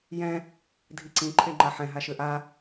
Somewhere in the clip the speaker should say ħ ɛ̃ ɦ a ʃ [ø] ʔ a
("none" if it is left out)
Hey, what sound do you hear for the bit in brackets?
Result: ø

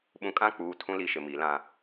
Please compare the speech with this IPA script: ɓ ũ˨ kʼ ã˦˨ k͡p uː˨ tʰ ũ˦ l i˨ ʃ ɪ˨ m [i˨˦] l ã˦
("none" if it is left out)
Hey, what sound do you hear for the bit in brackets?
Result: i˨˦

